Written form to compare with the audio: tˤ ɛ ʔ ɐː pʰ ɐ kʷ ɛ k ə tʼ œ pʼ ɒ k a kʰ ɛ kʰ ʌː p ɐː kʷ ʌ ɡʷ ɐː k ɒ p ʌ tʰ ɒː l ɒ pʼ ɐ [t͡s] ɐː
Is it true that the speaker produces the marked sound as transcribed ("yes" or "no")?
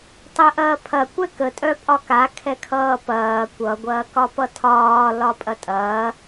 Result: no